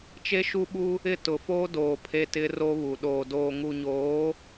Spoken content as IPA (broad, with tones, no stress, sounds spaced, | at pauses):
t͡ʃ e˦ ʃ u˦ ɓ u˦ | ɪ˦˨ t ʊ˨ f oː˦ d oː˨ pʰ e˦ t ɪ˦ r o˦ β u˨ ɗ oː˨ d oː˨ ŋ u˨ ɲ oː˨˦